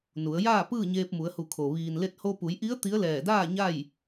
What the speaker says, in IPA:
n u˩˧ ə̯ j aː˥˨ p ɯː˥˨ ɲ eː˧ p̚ m u˩˧ ə̯ h u˧˩ kʰ o˩ ʋ iː˩ n l e˧ t̚ h o˧ p u˩˧ j ʔ i˧˥ ə̯ t̪ i˧˥ ə̯ l ɛː˧˩ d aː˥˨ ɲ a˥˨ j

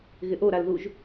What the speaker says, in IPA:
ɣ ɪ ʔ o ɾ a l ð u ʒ

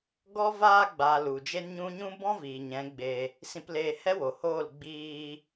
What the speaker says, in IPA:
ɡ ɔ˦ v aː˧ ɡ͡b aː˨ l u˨ d͡ʒ e˦ n ɲ ũ˦ ɲ ũ˦ b ɔ̃˦ v iː˨ ɲ ɛ̃˨˦ ɡ͡b e˧ | s ĩ˧ p l eː˧ h ɛ˦ w o˨ h oː˦˨ l ɡ͡b iː˧

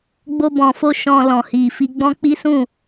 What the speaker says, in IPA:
ɡ͡b o˧ b ɔ̃˨ f o˧ ʃ ɔ̃˨ l ɔ̃˨ h i˨ f i˧ ɡ͡b ɔ̃˦ k͡p i˦ s ũ˦˨

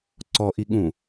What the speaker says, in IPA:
ǀ ɔ ʔ i ɠ ũ

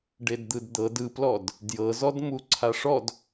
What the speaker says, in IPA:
ɖ e d d̪ ɯ d d̪ ɤ d ɯ p l ɔ d | d j ɤ z ɔ d m u ǀʰ a ʂ ɔ d

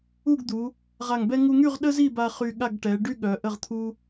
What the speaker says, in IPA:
u˥˧ ɡ d̪ u˩˧ | ʁ a˧˩ ŋ b ɛ˥ ŋ u˧ ŋ y˥˧ ʁ ɗ ə˥ z i˥˧ b a˧ χ y˧ ɠ a˥˧ ɡ ʈ ɛ˩˧ ɖ y˥ ɠ œ˩˧ ʔ ə˥˧ ʁ t̪ʰ u˥

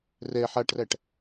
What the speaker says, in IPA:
r ɛ ħ a ʈ r æ ʈ

